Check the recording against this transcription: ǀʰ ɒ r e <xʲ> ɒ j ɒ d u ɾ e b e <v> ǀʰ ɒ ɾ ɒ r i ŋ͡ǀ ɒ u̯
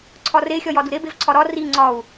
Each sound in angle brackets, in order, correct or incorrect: correct, correct

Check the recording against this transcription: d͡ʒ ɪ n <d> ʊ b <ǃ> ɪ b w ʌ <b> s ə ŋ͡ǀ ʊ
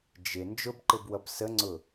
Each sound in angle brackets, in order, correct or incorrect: incorrect, correct, correct

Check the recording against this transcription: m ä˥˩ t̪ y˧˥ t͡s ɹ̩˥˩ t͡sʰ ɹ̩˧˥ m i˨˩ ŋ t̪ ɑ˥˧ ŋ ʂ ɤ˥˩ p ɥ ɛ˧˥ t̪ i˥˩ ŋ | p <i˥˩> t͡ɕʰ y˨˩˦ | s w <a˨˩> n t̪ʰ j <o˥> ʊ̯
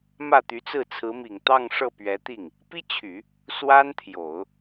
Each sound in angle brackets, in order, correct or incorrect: incorrect, incorrect, incorrect

